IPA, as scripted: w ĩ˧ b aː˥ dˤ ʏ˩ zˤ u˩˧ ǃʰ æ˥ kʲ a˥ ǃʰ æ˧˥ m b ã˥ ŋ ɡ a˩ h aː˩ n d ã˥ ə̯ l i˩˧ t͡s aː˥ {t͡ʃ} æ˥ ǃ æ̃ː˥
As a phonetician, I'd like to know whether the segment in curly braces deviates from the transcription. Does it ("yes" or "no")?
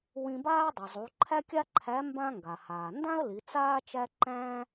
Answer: no